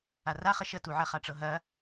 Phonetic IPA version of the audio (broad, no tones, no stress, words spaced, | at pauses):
araχə ʃətuʕɐ χaʈ͡ʂɤɦɐ